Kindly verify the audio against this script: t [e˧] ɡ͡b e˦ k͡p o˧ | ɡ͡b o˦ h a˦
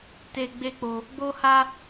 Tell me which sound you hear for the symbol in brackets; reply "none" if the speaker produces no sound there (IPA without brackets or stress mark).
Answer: e˧